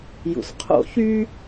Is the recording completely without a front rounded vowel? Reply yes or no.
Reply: no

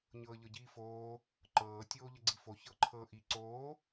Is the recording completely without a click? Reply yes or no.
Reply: no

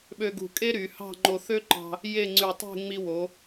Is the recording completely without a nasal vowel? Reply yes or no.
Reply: yes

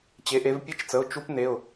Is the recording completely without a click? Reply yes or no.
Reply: yes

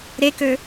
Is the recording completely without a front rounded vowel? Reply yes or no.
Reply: no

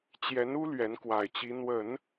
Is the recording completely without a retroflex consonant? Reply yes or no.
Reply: yes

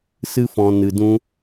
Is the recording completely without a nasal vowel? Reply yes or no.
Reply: no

